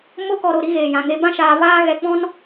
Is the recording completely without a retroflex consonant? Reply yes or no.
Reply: yes